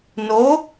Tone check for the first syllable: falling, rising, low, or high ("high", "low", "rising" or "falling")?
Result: rising